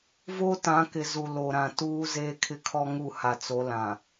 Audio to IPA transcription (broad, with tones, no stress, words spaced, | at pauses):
voː˦tã˨˦kɪ˨ zu˨lo˨ɾã˨tuː˦ zeː˦kʰɪ˦kʰɔ˦ ŋu˦˨ha˨t͡so˨˦ lã˨